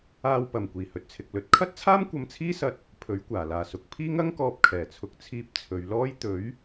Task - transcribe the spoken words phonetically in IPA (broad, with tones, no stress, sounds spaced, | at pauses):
aː˧ w p ɐ˨˩ m kʷ iː˨˩ h ɵ˨ t̚ t͡sʰ ɪ˨ k̚ l ɵ˨˥ t̚ kʰ ɐ˥ t̚ t͡sʰ aː˥ m kʷ ɐ˧ m t͡sʰ iː˥ s ɐ˧ t̚ | pʰ ɵ˨˥ ɥ kʷ aː˨˩ l aː˨ s ʊ˨ k̚ pʰ iː˥ ŋ ɐ˥ ŋ k ɔː˧ p̚ kʰ ɛː˨˩ t͡sʰ ʊ˨ k̚ t͡sʰ iː˧ p̚ t͡sʰ ɵ˨˧ ɥ l ɔː˥ j t̪ ɵ˨˥ ɥ